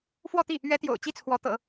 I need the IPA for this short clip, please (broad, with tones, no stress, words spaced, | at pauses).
fwɔ˥˧t̪i˥˩ | ɥɛ˧˥t̪jo̰˨˩ʊ̯ t͡ɕi˥˩t͡sʰwɔ˧˥t̪ɤ̰˨˩˦